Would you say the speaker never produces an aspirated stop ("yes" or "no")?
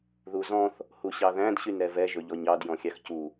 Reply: yes